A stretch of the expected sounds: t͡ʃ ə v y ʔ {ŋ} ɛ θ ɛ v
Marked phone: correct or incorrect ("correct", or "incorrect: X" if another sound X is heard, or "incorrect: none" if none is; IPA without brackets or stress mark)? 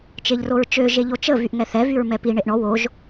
correct